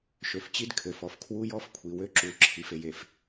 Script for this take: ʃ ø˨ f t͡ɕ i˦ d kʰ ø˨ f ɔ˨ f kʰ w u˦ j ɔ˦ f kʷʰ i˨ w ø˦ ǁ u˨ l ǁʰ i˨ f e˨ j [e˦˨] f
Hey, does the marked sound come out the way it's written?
no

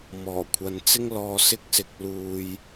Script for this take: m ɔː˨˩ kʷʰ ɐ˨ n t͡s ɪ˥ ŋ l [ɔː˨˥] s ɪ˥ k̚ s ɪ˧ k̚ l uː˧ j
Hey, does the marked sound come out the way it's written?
no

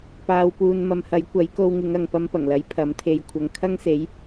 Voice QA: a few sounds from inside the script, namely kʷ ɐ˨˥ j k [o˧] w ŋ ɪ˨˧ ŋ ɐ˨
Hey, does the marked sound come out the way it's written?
yes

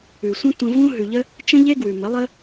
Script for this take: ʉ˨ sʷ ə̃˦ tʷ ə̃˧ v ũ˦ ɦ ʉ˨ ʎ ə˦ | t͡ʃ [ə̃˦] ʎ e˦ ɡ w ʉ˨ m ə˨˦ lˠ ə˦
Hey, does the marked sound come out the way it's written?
yes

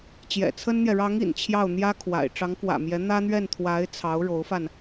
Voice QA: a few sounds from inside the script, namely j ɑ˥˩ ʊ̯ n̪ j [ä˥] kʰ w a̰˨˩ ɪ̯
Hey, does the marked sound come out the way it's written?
yes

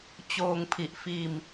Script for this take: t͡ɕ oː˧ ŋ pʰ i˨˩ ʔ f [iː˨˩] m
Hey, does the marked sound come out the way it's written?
no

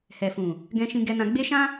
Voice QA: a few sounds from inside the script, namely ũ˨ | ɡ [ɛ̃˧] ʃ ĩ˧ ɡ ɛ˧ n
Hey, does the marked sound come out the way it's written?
yes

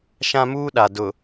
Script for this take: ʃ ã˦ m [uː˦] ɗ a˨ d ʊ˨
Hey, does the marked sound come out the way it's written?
yes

